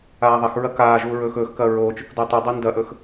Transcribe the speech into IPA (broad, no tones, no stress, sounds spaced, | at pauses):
aː ðˤ ɐ x ɹ ɐ k aː ʒ uː ɹ ɵː x ɵː x k ɐː ɹ oː t͡ʃ ɵ k d o tˤ i dˤ i n d ɐ ʔ ɵ x